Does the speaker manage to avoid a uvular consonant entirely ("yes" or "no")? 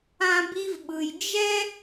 yes